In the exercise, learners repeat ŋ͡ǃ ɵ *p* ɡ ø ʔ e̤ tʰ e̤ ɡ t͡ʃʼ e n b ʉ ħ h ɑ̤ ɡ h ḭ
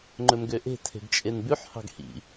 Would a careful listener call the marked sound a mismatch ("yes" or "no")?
yes